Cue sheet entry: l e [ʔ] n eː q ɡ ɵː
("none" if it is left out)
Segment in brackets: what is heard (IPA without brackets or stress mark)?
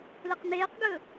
q